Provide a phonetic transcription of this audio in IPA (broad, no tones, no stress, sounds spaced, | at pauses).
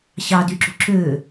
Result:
ɕ ɑ d y ǁ ṳ ǁ ø